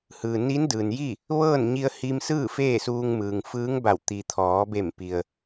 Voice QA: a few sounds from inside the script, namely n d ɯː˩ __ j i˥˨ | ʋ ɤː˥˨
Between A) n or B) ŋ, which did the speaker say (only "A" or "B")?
A